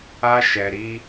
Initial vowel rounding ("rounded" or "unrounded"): unrounded